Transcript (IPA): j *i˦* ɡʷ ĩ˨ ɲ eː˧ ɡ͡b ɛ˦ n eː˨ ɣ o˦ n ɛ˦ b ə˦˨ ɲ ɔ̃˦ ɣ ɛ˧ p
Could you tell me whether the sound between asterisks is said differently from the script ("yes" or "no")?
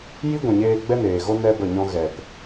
no